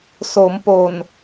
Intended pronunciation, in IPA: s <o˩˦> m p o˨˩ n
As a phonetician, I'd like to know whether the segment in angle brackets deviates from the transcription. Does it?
no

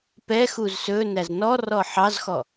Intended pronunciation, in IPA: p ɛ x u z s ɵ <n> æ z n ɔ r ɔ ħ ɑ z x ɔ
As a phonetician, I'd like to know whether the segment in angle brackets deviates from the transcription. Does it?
no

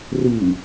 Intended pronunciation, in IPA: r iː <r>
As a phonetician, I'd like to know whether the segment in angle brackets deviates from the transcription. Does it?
yes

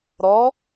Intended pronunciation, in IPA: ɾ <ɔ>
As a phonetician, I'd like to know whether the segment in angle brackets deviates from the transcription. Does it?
no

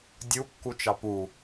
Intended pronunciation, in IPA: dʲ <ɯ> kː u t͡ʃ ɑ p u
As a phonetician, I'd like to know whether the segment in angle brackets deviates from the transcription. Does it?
yes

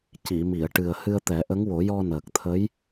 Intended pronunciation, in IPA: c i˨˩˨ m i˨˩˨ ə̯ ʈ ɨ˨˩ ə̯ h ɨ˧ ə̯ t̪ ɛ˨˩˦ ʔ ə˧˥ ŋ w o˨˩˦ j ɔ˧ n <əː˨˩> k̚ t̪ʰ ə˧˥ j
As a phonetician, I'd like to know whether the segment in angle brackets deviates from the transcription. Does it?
no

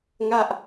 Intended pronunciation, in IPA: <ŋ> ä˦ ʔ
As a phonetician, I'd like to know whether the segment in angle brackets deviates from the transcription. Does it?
no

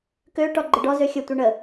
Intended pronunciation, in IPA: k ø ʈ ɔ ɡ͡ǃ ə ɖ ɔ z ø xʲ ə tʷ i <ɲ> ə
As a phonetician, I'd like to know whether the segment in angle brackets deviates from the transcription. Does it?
yes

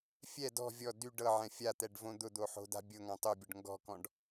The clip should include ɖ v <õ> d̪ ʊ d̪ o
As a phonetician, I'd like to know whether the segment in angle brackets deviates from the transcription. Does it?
no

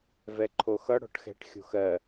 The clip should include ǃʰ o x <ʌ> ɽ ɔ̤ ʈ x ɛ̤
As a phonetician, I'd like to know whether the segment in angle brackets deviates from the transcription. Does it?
no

